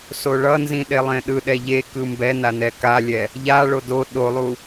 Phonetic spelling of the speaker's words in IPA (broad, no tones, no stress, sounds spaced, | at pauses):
s o ɭ ʌ n z ĩ ɗ e lˠ ẽ ɗ ɯ ɗ ɛ ʎ e k ɯ m b ɛ n a n ɛ k a lʲ ɛ | ʎ a ɭ o d o ɗ o lˠ u